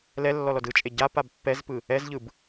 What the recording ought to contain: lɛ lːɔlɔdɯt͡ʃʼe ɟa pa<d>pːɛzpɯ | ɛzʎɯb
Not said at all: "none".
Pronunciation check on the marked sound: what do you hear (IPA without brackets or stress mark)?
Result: b